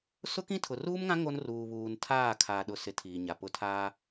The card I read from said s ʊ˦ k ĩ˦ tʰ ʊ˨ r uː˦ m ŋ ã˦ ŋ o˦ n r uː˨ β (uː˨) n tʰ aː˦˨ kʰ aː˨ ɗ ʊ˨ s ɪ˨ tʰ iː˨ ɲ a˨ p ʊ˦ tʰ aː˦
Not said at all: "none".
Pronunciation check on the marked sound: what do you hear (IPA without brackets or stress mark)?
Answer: uː˨